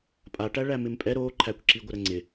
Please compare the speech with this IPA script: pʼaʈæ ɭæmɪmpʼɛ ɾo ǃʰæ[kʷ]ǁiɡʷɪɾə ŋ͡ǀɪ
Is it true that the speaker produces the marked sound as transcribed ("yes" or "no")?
yes